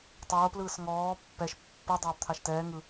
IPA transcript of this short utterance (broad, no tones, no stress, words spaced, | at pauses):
tˤoːplɯːs ŋɔː pːɛʃ pːɯ dˤoːbt̪ʰaʃtɛː ŋɯ